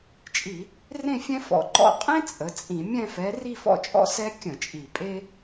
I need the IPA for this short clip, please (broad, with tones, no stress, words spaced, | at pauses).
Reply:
t͡ʃʼi˧˩˧ | rẽ˥˧fʲɛ̃˥ fɔ̰˨˩ǃɔ̰˥˧ qʼẽ˥ t͡sʼə˩˧t͡sʼĩ˧˩˧ mʲɛ̃˥˧fɛ˨˥ ri˥˧fɔ̰˥˧t͡ʃʼɔ̰˥˧ sɛ˥ kʲə̃˧˩˧ t͡ʃʼi˨˩pʼe˥